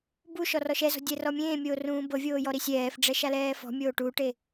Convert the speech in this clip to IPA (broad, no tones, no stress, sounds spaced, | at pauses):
b u ʃ ɔ r ɔ ʃ ɛ z ɔ̤ dʲ ɛ r ɔ mʲ ẽː mʲ oː r ũː b ɤ vʲ oː j ɔ ɾ i sʲ ɛː f ɖ͡ʐ ɛ ʃ a l ɛː f ɔ̤ mʲ oː ʈ u ʈ e